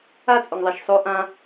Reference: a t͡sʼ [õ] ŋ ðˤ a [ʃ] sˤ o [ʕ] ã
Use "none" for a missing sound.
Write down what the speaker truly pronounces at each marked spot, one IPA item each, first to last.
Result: o, ʃ, ʔ

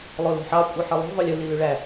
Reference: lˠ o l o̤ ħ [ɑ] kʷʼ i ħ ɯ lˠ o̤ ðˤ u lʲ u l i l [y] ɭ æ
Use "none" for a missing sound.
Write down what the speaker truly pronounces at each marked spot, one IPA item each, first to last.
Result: ɑ, y

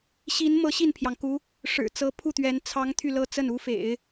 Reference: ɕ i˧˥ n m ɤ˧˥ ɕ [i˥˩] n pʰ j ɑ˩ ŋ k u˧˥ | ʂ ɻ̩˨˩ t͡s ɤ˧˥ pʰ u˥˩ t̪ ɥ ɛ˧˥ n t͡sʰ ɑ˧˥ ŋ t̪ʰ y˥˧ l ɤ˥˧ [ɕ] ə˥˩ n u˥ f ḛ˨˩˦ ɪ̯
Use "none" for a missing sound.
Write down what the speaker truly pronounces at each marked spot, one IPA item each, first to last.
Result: i˥˩, t͡s

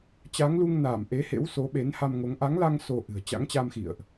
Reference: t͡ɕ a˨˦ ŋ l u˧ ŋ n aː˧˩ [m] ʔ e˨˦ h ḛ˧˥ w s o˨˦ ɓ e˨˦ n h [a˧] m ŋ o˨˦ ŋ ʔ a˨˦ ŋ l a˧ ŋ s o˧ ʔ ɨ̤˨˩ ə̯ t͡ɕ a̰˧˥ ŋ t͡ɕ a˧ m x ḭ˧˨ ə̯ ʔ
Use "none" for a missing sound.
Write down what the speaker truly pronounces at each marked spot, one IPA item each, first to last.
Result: m, a˧

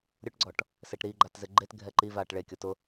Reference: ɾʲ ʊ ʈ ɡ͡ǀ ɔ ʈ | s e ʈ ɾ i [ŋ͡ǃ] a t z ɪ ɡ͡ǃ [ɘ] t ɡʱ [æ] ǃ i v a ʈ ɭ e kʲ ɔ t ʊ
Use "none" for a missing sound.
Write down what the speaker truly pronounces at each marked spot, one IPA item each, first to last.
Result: ɡ͡ǃ, e, ɛ

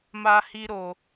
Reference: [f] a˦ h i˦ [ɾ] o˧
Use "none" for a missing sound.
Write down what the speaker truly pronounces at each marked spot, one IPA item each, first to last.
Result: m, ɾ

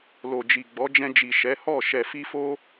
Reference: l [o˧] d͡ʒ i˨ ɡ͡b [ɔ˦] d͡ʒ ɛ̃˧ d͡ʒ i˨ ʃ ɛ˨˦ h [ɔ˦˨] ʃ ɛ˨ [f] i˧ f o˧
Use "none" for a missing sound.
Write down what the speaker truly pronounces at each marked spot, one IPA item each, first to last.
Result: o˨, ɔ˨˦, ɔ˦˨, f

